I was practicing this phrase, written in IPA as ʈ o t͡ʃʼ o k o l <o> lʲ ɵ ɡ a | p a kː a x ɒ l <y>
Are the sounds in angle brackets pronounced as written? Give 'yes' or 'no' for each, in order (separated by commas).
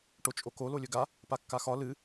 yes, no